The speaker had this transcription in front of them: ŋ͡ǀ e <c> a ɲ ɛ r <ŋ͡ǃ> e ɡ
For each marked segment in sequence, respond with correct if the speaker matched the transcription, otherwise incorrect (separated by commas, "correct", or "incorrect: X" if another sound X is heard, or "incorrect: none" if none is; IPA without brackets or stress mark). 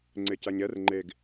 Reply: correct, correct